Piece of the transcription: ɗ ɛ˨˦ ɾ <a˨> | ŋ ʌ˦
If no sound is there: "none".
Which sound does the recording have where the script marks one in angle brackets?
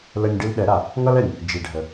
a˨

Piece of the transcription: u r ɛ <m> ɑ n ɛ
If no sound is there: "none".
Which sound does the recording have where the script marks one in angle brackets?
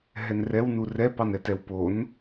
p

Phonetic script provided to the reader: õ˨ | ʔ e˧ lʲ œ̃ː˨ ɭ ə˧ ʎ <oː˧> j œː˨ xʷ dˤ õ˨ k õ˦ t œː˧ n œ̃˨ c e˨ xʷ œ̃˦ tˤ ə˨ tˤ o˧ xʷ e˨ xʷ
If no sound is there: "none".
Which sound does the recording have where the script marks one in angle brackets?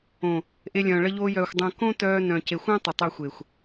oː˧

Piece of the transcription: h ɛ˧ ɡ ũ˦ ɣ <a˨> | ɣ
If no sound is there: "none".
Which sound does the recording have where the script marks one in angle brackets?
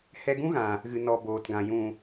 ã˨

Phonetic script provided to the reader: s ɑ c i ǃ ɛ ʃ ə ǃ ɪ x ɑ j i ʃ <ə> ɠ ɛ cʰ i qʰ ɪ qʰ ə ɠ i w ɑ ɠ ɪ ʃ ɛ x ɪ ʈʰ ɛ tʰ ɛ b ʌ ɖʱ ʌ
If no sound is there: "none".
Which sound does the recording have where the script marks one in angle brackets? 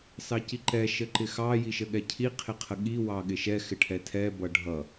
ə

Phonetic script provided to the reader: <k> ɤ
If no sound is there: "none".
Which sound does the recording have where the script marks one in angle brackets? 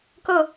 k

